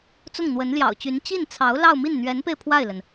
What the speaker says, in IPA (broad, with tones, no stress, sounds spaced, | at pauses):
t͡s ʊ˥˩ ŋ n̪ w ə˧˥ n l j ɑ̰˨˩ ʊ̯ t͡ɕ y˧˥ n t͡ɕ i˥˩ n t͡sʰ ɑ˧˥ ʊ̯ l ɑ˥˧ ʊ̯ m i˥˩ n n̪ ɥ ɛ˧˥ n p e˧ ɪ̯ pʰ w a˥˩ ɪ̯ l ə˩ n